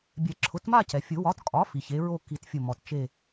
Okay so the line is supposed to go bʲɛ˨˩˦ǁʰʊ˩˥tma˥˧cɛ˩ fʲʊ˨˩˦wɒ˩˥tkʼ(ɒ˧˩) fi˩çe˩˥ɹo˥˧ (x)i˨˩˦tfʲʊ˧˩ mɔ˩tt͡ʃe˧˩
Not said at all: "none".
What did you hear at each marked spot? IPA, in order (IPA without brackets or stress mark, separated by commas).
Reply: ɒ˩˥, k